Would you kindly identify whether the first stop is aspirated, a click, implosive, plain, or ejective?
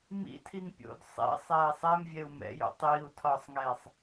aspirated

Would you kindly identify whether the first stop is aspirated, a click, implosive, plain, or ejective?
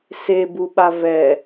plain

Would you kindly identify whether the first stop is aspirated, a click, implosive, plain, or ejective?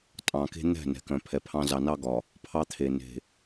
ejective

